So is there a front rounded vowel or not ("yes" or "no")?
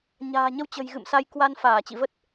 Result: no